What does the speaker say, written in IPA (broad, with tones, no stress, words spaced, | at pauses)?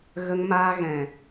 ɣə˧ŋmaː˧ɣɛ̃˨